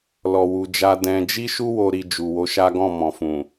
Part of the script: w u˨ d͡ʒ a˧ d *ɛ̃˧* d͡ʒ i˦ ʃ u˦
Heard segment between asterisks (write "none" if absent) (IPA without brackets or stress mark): ɛ̃˧